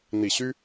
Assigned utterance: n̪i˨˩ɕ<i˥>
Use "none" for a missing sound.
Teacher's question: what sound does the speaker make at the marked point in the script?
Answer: y˥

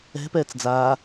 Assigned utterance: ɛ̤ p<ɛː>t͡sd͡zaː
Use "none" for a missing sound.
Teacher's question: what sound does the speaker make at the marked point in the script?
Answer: ɛː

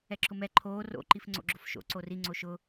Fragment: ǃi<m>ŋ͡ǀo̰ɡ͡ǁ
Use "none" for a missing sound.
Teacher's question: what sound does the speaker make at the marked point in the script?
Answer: f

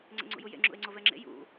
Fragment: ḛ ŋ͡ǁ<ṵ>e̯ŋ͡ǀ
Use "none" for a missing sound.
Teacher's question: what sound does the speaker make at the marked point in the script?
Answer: ṵ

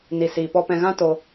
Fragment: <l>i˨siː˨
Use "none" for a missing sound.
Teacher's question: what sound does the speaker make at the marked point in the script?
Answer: n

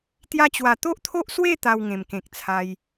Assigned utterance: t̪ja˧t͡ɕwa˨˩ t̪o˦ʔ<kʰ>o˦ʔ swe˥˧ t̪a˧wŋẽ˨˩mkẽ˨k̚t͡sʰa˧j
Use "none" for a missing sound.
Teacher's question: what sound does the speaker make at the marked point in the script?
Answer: t̪ʰ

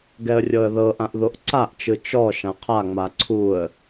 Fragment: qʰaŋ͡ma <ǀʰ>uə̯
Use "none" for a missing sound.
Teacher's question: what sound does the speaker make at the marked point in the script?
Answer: ǀʰ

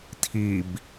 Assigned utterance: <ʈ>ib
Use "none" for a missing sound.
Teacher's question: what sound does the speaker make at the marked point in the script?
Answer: tʰ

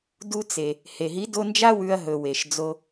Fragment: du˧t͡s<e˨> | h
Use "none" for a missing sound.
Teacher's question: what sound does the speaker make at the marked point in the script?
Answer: e˨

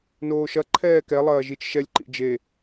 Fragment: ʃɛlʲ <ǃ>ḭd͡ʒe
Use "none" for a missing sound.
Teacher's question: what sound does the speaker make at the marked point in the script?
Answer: ǃ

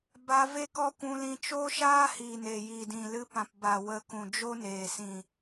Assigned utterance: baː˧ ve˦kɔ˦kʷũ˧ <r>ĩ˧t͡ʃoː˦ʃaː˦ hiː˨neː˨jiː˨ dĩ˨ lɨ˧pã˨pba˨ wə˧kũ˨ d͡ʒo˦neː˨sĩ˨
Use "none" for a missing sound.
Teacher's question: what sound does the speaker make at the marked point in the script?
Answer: l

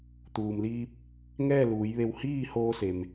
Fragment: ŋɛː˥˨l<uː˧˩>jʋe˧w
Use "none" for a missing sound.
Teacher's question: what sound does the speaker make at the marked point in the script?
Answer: uː˩˧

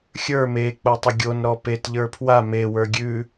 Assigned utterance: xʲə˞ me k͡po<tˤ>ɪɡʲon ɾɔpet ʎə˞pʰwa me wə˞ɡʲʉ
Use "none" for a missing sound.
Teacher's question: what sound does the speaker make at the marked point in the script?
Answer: tˤ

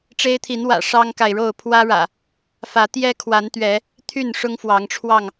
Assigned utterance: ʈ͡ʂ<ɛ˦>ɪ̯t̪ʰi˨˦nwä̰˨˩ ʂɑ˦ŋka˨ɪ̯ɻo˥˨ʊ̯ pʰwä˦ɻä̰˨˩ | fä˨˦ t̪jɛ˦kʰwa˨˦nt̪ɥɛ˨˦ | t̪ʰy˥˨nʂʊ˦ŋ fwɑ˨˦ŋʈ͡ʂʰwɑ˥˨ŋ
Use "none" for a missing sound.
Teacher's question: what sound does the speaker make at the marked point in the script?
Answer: e˦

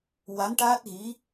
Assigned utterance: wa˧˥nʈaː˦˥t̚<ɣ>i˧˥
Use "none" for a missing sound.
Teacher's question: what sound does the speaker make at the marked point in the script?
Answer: ɣ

